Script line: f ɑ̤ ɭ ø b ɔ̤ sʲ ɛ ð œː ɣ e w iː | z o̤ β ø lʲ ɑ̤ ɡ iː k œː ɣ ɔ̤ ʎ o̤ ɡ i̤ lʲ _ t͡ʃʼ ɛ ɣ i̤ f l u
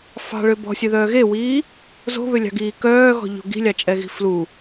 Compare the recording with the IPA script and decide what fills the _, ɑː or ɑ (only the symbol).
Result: ɑ